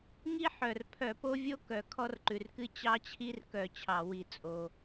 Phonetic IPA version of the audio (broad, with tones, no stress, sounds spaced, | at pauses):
ŋ i˥ ħ œ˩ r pʰ œ˧˩˧ p o˥ vʲ o˥ k œ˩ kʰ ɔ˥ r ǃ ʉ˩ r k ɨ˥ t͡ɕ ɑ˥ t͡ɕʰ i˥ r k œ˧˩˧ t͡ɕʰ ɑ˧˩˧ w i˧˩˧ t͡sʼ o˩